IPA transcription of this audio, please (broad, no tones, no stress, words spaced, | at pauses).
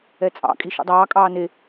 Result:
ɛt͡sʼɑ̰ kʼiʃṵdˤɑː kʼɑːne